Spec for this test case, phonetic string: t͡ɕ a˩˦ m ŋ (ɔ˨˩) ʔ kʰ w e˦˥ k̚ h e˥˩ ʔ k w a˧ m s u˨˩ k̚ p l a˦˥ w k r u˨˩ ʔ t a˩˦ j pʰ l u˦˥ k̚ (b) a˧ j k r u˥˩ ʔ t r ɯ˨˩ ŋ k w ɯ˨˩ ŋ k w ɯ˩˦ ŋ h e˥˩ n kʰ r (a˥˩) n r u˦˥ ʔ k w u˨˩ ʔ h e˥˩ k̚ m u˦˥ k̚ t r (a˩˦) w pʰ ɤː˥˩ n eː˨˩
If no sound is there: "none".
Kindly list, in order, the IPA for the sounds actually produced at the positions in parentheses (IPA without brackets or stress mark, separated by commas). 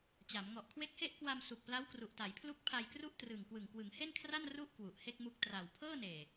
ɔ˨˩, pʰ, a˥˩, a˨˩